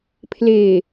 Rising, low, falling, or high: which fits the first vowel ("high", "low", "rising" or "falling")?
low